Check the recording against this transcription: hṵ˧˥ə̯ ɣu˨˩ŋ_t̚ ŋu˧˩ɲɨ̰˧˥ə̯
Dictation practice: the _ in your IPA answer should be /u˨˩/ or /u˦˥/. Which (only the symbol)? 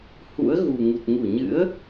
u˨˩